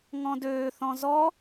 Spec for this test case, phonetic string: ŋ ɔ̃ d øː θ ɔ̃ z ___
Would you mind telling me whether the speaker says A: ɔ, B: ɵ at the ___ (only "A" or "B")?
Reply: A